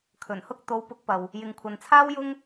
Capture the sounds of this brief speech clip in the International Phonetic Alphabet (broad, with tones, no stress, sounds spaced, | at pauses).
kʰ ɵ˨˩ n h ʊ˥ k̚ t̪ o˨˧ w p ʊ˨˥ k̚ p ɐ˨ w | j ɪ˨ ŋ kʷʰ ɐ˨ n t͡sʰ aː˥ w j ʊ˥ ŋ